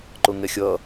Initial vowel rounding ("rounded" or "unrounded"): rounded